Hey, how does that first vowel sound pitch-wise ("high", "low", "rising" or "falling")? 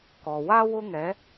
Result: low